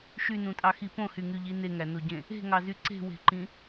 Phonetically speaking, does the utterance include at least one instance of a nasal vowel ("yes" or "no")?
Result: yes